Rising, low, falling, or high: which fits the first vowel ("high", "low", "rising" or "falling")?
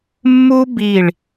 high